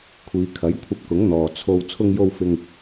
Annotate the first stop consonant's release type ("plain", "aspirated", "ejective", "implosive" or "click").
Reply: aspirated